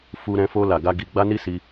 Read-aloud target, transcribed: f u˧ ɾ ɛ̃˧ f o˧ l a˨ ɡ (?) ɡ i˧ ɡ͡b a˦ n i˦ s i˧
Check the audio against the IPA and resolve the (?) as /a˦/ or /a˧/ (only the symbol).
a˧